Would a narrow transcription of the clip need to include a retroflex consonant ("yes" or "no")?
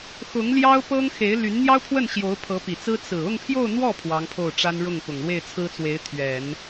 yes